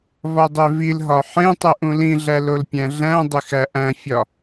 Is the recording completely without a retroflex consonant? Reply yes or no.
yes